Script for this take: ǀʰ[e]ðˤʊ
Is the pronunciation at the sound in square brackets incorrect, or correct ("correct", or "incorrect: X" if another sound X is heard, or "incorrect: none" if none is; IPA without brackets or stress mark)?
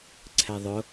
incorrect: ɛ